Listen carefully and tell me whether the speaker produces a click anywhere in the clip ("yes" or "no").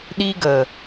no